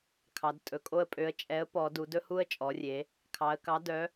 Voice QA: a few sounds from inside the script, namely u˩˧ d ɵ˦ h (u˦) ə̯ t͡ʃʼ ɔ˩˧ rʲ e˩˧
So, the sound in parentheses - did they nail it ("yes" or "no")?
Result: yes